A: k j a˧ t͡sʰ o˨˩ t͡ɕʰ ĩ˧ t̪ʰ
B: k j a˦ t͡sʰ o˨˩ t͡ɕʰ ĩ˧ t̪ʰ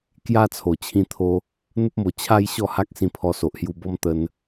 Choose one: B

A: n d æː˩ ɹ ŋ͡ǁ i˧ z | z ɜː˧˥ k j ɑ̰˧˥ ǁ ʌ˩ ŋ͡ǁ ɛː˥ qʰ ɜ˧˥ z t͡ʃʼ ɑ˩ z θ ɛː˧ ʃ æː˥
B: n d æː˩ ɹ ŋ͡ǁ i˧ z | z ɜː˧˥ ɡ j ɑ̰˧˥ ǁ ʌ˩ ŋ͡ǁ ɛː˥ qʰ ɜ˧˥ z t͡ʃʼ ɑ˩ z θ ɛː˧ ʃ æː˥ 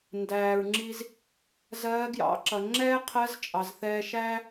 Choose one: B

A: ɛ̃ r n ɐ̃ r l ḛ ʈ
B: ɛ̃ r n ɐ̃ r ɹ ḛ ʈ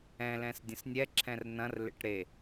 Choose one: A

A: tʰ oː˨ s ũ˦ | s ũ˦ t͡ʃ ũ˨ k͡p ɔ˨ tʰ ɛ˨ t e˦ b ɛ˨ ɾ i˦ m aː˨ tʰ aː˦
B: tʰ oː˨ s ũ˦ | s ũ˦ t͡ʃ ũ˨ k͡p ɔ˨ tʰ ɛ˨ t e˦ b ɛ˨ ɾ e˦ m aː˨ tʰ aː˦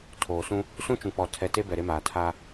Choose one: B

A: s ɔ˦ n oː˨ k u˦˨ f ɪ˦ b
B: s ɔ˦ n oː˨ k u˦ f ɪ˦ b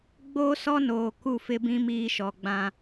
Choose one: A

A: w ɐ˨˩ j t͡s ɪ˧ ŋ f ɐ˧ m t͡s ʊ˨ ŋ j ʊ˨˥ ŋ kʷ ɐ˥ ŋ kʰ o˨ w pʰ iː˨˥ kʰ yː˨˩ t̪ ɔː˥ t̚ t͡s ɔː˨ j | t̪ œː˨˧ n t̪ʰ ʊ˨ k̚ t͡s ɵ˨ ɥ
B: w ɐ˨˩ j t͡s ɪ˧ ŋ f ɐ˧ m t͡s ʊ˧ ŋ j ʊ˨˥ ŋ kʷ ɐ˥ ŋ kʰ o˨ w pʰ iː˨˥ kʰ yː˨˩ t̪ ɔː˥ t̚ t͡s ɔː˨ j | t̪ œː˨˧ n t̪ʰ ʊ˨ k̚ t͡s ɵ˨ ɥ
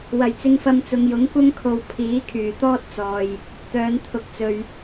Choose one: A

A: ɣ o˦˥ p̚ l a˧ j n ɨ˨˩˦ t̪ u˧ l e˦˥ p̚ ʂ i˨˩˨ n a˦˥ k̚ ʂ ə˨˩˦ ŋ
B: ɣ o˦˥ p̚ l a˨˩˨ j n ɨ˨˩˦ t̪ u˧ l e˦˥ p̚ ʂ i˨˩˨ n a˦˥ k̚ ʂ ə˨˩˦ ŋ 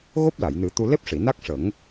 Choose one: B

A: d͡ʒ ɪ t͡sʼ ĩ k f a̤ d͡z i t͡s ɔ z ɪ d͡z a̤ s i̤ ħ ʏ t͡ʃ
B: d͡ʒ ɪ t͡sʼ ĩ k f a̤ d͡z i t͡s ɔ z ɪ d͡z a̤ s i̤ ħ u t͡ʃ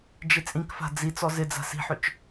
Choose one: A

